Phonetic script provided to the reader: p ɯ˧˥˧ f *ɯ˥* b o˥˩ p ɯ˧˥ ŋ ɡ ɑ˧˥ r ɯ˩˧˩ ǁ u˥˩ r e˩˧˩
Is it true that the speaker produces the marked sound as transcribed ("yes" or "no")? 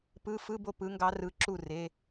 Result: no